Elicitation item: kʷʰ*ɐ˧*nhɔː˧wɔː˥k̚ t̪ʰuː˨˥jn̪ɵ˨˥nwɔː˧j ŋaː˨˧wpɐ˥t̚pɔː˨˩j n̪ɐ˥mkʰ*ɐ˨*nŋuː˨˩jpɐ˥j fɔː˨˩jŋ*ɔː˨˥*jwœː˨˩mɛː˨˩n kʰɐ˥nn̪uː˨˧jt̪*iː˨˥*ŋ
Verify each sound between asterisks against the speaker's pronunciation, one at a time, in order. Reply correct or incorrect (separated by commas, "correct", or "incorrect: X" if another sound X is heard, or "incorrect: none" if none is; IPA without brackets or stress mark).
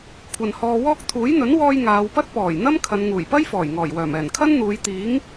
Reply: incorrect: ɐ˨, incorrect: ɐ˨˧, incorrect: ɔː˨˩, correct